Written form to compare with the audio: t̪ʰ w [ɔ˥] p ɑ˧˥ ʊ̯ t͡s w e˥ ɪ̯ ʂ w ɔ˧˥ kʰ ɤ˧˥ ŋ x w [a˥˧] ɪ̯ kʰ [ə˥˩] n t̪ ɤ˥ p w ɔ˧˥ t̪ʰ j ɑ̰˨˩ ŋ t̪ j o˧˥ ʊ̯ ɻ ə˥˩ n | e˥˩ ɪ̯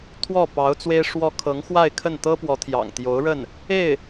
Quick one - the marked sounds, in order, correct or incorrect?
incorrect: ɔ˥˩, correct, correct

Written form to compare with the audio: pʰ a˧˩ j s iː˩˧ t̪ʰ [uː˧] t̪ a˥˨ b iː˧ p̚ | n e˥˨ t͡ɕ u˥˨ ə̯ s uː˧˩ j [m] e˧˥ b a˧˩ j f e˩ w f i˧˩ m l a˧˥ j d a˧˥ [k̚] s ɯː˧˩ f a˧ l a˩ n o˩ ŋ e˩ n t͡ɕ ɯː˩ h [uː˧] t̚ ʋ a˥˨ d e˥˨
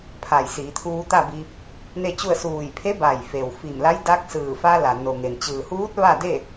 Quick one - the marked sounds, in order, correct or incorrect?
correct, incorrect: pʰ, correct, incorrect: uː˧˥

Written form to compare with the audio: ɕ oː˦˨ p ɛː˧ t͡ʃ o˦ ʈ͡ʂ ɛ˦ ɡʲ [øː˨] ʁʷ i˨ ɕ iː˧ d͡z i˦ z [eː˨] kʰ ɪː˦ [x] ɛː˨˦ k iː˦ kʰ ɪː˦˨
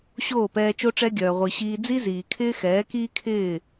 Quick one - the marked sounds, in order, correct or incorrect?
incorrect: œː˨, incorrect: iː˨, correct

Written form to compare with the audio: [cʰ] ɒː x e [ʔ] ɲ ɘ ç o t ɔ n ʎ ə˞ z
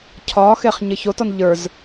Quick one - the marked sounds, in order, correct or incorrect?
correct, incorrect: χ

